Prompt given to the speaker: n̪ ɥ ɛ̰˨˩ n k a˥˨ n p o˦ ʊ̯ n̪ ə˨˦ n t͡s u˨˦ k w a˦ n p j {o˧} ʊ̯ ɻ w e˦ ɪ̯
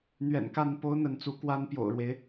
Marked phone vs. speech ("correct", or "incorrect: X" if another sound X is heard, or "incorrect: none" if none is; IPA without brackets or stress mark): incorrect: o̰˨˩